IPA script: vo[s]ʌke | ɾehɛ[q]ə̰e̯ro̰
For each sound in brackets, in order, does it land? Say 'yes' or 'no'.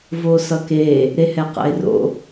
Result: yes, yes

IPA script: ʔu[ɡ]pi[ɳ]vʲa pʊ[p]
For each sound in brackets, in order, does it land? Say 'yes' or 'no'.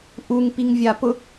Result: no, no, no

